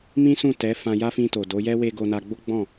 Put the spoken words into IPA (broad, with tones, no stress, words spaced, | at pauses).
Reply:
mĩ˦sũ˦˨tɛ˨˦ fã˧ja˦fĩ˧to˨ do˨˦jɛ˦we˧ ɡo˧na˧ɡ͡bo˦ ɡ͡bɔ̃˦˨